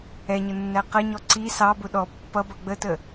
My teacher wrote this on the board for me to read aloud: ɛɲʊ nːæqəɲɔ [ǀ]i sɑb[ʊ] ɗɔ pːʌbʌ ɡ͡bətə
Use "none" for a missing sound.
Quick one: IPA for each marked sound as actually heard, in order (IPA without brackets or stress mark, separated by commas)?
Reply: ǀ, ʊ